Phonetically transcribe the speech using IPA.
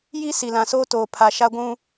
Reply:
ji˦ si˨lã˨soː˦toː˨ pʰa˨ʃa˦ɡʷũ˦

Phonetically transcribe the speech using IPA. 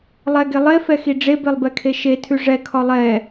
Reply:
lˠɛɡe lˠefɛxi ɖ͡ʐebelˠbɛkʰe ʃetʰʉ ʐɛkʰɒ lˠɛ

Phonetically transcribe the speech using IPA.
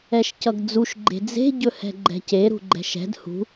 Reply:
ɛʃcʌɡd͡zuʃ ɡ͡ǃe̤d͡ze̤ ɟɵhɛ̤ɡ͡ǃɛ̤ce ɾṳɡ͡ǃɛ̤ʃɛ̤d hṳ

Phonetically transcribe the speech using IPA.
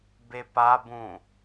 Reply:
bepabũ

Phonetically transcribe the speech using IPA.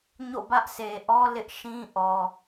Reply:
ɲo̰˦˨bä˦ʔsʰe˨ ʔɔ˦ lɪ˦ʔ ʃĩ˦ ʔɔ˨

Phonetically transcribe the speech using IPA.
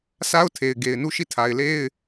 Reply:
sa˦ʊ̯tʰe˨ɪ̯ ɡe˨ɪ̯nu˦˨ ʃi˦˨tʰa˨ɪ̯le˦ɪ̯

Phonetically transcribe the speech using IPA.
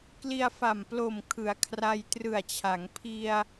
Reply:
kli˧a̯fa˨˩mplo˨˩m kʰɯ˩˦a̯kʰra˧j trɯ˨˩a̯t͡ɕʰa˩˦ŋ pʰi˧a̯

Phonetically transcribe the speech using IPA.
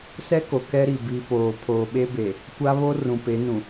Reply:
sɛ˦ko˨ kɛ˦ɾi˨ bi˨poː˨ pʰoː˨ɓe˦be˨ | kʷa˦βo˦ rũ˨pe˨˦nũ˨

